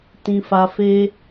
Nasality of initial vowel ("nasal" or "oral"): nasal